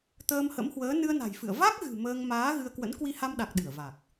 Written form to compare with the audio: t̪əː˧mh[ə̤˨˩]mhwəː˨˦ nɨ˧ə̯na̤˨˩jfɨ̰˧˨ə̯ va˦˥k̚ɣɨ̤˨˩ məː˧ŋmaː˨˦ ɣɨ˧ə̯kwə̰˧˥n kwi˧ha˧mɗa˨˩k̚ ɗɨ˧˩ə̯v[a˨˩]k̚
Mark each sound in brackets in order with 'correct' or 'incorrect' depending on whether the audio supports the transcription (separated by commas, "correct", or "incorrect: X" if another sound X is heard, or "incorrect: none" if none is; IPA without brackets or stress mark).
incorrect: ə̰˧˥, correct